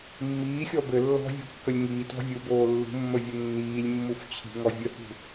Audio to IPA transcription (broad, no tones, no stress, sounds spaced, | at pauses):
mː iː xʲ ɔ b ɘ lː ɔ̤ vʲ ṳ kː ə lʲ ŋ iː t ɔ̤ vʲ u b oː lː ṳ mː ə vʲ ə nː iː lʲ mː u f t͡ɕʰ i̤ ŋ ɔ vʲ ə h ṳ